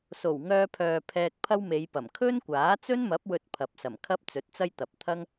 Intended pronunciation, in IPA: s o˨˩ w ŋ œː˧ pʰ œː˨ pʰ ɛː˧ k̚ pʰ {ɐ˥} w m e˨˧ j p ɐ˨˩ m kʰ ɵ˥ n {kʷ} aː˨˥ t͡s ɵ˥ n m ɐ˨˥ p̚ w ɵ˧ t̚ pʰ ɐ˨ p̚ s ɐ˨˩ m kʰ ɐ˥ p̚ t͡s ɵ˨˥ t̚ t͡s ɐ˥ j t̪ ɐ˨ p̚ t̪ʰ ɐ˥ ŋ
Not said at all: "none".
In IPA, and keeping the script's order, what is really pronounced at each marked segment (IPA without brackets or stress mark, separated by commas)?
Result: ɐ˥, kʷ